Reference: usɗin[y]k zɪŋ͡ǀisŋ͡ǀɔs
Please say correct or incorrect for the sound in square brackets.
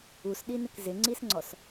incorrect